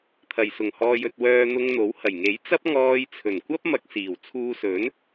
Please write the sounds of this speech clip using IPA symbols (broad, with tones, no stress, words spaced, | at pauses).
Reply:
t̪ʰɐ˨˩j sʊ˨˩ŋhɔː˨jɵ˨t̚ wœː˧n̪ʊ˧ŋ n̪o˨˥whɐ˨˩j ŋe˨˥jt͡sɐ˥p̚ŋɔː˧j t͡sʰɵ˨˩nkʷɐ˥p̚ mɐ˧k̚siː˨˩wt͡sʰuː˧sɵ˨˥n